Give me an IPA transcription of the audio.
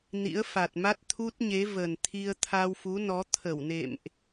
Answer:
n ḭ˧˥ ə̯ f a˨˩ t̚ m a˦˥ t̚ t̪ʰ u˦˥ t̚ ɲ e˨˦ v ə˨˩ n t̪ʰ i˧ ə̯ t̪ʰ a˧ w f u˨˦ n ɔ˨˦ t̪ʰ ə˧˩ w n ḛ˧˨ m ʔ

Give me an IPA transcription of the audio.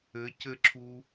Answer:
ɘ c ɘ ǁʰ u

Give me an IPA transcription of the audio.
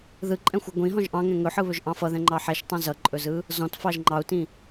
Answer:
ð ɯ ǃʼ ɛ̃ xʷ ɯ ɡʷ ĩ ɦ ɔ̃ ʒ ʔ ɑ̃ ŋ ɛ̃ ŋ ɵ ħ ɯ β ɵ ʒ ʔ ɑ̃ f ʌ ð ɛ̃ ŋ͡ǃ ɑ ħ ɛ ʃ tˤ ɛ̃ z ʌ ǃʼ ɵ z ɯ | z ɔ̃ t f ɑ ʒ ŋ͡ǃ ɑ u̯ t ĩ

